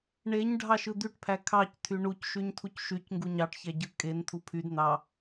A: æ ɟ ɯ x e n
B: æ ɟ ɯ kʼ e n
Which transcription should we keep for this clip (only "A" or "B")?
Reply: B